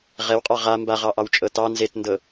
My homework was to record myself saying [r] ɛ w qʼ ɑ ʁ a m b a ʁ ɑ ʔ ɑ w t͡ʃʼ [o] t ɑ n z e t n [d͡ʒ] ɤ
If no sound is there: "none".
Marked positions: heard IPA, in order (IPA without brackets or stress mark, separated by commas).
ʁ, ɤ, d